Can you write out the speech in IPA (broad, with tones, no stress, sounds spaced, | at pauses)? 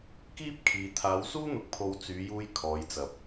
k iː˥ p̚ kʰ iː˨ t̪ʰ aː˨˧ w s uː˥ n̪ ʊ˨˥ k̚ pʰ o˨ w t͡s yː˨˧ j uː˧ j kʰ ɔː˨˧ j t͡s ɐ˨ p̚